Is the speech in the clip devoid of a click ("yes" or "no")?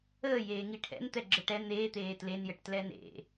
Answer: no